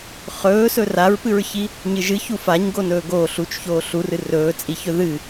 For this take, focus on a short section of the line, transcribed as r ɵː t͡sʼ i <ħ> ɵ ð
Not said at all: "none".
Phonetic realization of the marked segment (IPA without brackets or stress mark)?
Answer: ç